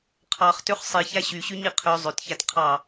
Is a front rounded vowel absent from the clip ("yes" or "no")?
no